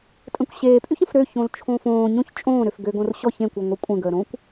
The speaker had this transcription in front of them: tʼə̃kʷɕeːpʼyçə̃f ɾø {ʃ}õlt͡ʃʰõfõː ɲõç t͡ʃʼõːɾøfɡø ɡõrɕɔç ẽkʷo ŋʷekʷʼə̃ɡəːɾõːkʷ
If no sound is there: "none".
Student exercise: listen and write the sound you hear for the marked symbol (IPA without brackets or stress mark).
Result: ç